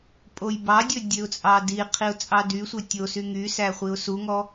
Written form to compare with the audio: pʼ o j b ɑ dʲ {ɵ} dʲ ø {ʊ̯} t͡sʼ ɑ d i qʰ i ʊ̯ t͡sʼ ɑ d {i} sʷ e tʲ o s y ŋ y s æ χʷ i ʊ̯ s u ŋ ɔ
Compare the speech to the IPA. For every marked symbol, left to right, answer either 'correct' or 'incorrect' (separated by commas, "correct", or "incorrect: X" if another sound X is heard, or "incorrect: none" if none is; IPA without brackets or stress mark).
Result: correct, correct, incorrect: y